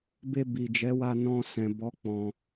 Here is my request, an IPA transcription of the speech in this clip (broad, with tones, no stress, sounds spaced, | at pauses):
b e˧ b i˨ d͡ʒ ɛ˨˦ w a˧ n ɔ̃˧ s ɛ̃˨ b ɔ˨˦ k͡p ɔ̃˧